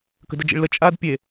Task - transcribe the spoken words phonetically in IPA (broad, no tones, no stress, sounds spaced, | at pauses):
k ə̤ d ə d͡ʒ ḭ ɭ l ə t͡ʃʼ a d pʲ e